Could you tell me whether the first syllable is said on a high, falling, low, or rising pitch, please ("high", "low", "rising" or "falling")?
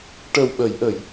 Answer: low